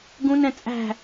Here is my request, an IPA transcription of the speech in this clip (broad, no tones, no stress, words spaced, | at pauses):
ɡũnɛ̃ t͡sʼæ̤